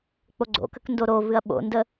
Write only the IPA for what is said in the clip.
k͡p o ɡ͡ǀ o̰ k ə k n d o ɾ o v ɨ ɐ̯ ɓ o̰ n d ə

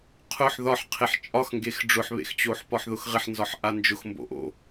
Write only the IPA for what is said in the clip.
qʰ ʊ ħ ð ɒ ħ qʰ e ħ t͡ʃʼ ɒ x ŋ ɡ e x ɖ͡ʐ ʊ ħ β ḛ x t͡ɕ o ħ p ɒ ħ ð ʊ x ʁ ɪ ħ n z ɒ ħ ʔ a n d͡ʒ ʊ x m b o̰ ʔ o̰

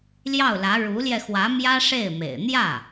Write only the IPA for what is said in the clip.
l j ɑ˥˩ ʊ̯ l ä˧˥ ɻ u˧˥ l j ɛ˧ x w ä˧˥ m j ä˥ ʂ e˥˩ ɪ̯ m ḛ˨˩ ɪ̯ n̪ j ä˥˩

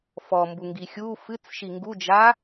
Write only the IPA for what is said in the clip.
f ɔ m b u ŋ ɡ i xʲ u f ɨ t͡s ʃ i ŋ ɡ u d͡ʒ a

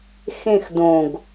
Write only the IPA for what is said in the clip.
x ẽ x d õ ɡ

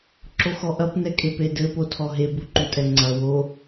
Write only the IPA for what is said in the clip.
ǁ o x ɔ ʔ ɐ p n ɛ kʼ e p e d ɘ p o tʰ ɔ ɦ e b u ǃ u tʼ ɛ ŋ͡ǀ ɐ w o

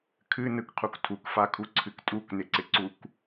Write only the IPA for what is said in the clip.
kʰ ɨ n ɯ k qʰ u k tʰ u k f a kʰ u ǀʰ ɨ k tʼ u k n ɪ ǀ ɪ ǀ u k

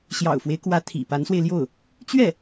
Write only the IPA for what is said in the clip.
ɕ j ɑ̰˨˩ ʊ̯ f w e˦ ɪ̯ k w ä˧˥ t̪ʰ ḭ˨˩ p a˧˥ n s w e˧ ɪ̯ l j o˥˩ ʊ̯ | t͡ɕ ɥ ɛ˥˩

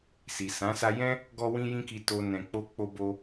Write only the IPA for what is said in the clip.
s i˨ s ã˨˦ s a˧ j ɛ̃˦ | ɡ ɔ˦ w ĩ˦ j ĩ˦ k i˧ t o˨ n ɛ̃˨ k͡p o˧ k͡p o˧ b o˧

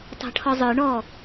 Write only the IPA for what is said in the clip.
tˤ æ̤ ʈʰ ɔ zˤ ə˞ ɳ ɔ

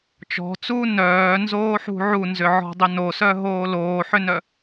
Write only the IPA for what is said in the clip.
t͡ʃ ɔ̤ t͡s uː n œː n z oː ħ ṳ ʕ u n z ʏ ʕ ɔ̤ dˤ ʏ n o s œ ɦ oː l oː ħ ʏ n œ

